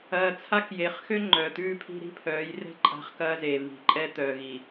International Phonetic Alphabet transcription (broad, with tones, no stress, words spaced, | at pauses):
ɐː˨ t͡sʰa˦kje˨χ xø˦ ŋ͡ǃœː˨t̪ʉː˦˨pʰi̤˦ ɾi̤˦pʰœː˨˦jrɛ̤˦ ǃʼa̤˦˨χkɐː˦zeː˨ βi̤˨ ǃʼɛ˦t̪œː˨ɣi˨